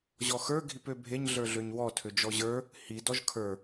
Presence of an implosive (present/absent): absent